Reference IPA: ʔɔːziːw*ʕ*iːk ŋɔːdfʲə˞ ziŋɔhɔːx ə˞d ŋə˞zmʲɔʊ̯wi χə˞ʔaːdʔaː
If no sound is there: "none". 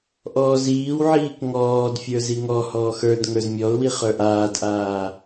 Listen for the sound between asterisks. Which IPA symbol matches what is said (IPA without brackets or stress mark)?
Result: ʕ